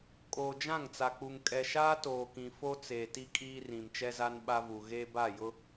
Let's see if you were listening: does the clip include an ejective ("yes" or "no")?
yes